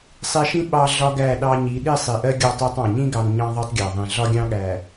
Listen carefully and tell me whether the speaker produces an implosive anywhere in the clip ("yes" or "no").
yes